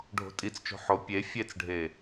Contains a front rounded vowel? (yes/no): no